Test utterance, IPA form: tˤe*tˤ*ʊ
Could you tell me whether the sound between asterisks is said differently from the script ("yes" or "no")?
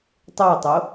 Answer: no